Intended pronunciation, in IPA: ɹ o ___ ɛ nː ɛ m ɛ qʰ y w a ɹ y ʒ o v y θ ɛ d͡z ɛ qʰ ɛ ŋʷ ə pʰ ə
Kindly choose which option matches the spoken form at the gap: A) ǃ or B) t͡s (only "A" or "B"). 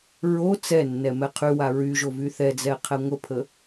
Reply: B